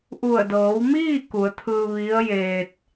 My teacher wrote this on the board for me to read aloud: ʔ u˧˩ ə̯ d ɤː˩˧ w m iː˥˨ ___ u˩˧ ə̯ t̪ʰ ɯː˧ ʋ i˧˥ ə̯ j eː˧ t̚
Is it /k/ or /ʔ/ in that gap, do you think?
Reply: k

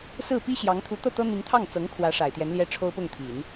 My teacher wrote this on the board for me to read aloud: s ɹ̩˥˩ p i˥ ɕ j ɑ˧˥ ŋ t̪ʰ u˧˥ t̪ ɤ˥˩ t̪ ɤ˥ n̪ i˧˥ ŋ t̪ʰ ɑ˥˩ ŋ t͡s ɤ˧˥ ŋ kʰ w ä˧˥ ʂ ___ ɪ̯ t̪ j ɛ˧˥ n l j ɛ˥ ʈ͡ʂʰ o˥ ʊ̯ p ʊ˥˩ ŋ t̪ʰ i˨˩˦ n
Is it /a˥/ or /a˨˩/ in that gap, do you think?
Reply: a˨˩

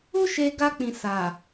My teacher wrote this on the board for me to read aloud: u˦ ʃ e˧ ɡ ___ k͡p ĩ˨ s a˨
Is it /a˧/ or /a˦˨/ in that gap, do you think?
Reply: a˧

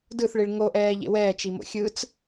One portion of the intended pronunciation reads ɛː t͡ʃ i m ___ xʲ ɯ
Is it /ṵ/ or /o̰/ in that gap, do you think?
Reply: o̰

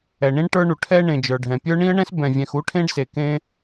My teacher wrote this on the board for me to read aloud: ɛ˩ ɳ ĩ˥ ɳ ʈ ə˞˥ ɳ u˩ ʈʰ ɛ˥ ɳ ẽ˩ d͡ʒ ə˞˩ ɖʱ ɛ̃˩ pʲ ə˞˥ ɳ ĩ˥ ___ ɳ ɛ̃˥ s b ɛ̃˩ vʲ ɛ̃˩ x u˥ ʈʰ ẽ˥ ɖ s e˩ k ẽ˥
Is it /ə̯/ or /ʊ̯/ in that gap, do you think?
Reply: ə̯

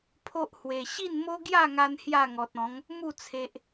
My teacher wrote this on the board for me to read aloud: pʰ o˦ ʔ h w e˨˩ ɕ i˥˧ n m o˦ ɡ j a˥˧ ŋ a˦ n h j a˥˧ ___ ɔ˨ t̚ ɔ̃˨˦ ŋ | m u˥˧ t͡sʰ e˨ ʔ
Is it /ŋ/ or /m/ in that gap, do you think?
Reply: ŋ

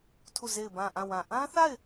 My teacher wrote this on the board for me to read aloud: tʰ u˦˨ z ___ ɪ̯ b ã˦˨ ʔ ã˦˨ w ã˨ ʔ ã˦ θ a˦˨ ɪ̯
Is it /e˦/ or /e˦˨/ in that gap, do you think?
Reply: e˦˨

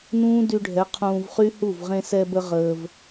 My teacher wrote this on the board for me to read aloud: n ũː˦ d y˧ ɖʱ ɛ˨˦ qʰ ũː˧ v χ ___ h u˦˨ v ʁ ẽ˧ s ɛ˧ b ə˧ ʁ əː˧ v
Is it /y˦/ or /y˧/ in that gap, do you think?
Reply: y˦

